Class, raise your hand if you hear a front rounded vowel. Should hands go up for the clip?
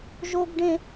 no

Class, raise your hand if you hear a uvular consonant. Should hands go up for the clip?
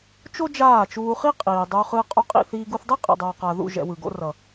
yes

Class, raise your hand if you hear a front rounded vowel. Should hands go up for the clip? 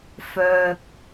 yes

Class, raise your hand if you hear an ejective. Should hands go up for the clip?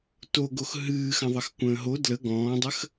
no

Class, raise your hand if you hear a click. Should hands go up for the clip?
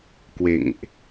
no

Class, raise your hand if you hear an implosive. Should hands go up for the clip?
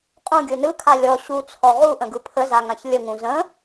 no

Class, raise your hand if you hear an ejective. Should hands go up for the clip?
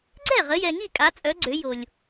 yes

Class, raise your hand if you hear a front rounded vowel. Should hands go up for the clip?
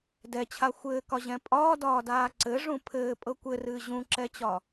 no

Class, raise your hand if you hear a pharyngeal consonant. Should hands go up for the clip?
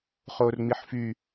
yes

